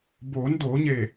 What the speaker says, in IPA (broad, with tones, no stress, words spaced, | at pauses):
boː˩˧n doː˩˧ɲeː˧˩